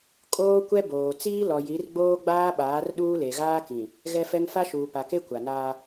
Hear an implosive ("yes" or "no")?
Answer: yes